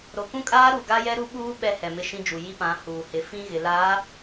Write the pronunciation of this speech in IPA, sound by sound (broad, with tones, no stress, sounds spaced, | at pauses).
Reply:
ɾ o˨ k ũ˦ kʼ aː˦ ɾ u˨ ɡ a˦ j ɛ˦ ɾ u˦ ɓ uː˦ ɓ ɛ˦ h ɛ˨ m ɪ˦˨ ʃ ĩ˦ d͡ʒ u˨ j i˦ p ã˨˦ h uː˨ h ɪ˨˦ f ĩ˦ ɣ ɪ˨ l a˨˦